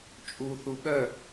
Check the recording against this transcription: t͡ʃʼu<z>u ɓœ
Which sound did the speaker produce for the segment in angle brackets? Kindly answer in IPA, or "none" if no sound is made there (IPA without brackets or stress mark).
θ